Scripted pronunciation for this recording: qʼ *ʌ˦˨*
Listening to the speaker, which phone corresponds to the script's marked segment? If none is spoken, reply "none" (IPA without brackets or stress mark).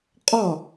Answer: ɒ˦˨